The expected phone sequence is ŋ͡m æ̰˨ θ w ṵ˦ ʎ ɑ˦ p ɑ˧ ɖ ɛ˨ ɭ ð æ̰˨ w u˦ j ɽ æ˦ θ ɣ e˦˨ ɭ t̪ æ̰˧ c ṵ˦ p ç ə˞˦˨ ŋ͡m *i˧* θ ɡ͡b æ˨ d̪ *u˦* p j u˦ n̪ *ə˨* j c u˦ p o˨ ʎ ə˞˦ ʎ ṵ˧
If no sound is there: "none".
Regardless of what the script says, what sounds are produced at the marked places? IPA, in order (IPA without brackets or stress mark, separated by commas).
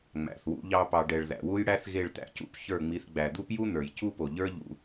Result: i˧, u˦, ə˞˨